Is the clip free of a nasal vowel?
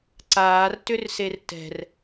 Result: yes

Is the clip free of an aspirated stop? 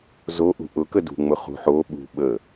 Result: yes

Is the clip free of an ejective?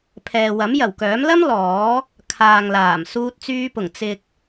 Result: yes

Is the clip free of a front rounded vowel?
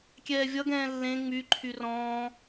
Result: no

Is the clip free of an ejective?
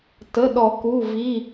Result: yes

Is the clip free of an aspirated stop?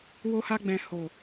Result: yes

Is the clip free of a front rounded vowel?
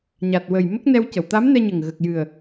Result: yes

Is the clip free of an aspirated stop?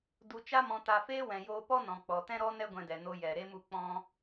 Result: yes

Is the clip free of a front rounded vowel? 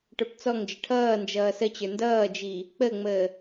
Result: yes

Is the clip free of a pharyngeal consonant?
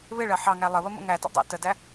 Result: no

